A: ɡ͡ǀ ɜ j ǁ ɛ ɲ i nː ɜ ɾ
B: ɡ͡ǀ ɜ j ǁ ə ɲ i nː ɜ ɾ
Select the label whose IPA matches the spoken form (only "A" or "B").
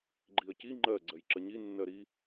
B